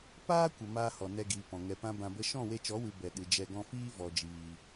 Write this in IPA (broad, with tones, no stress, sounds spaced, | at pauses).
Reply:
p aː˦ kʷ ə˨ m aː˦ h ɔ˨ n ɛ˧ ɡ iː˨ p ɔ̃˨ ŋ ɛ˧ p ã˦ b ã˧ b ə˦ ʃ ɔ̃˦˨ w e˧ t͡ʃ ɔ˨˦ w ɨ˨ b ɛ˨ ɗ ɨ˨ d͡ʒ ɛ˧ ɡ ɔ̃˧ f iː˦ v ɔ˨ d͡ʒ iː˨